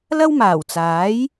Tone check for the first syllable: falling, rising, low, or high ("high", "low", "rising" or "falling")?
high